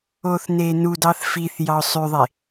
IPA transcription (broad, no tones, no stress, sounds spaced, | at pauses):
o θ n e n u d ɑ θ f i θ j ɑ ʊ̯ sˤ y ðˤ e